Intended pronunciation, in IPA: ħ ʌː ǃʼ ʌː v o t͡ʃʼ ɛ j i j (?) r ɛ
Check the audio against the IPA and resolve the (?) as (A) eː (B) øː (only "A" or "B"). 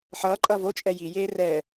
A